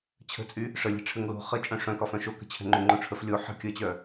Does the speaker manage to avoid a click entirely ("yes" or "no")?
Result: no